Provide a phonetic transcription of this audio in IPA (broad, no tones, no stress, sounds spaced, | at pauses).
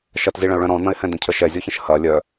ʃ ɐ t z i ɭ ɐ̃ ʊ̯ ɭ œ̃ ɾ ɔ̃ n̪ ɐ̃ ɪ̯ h ɛ̃ d̪ ə̃ cʰ ə ʃ ɛ zʲ ɔ ç ə̃ ʃ h ɐ lʲ œ